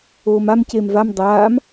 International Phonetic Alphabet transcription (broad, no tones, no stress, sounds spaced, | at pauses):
oː m a m c eː m v a m dˤ aː m